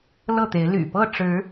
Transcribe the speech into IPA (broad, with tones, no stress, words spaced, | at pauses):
lɤ˥˨t̪e˨˦ɪ̯ly̰˨˩ pɤ˥˨ʈ͡ʂɻ̩˨˦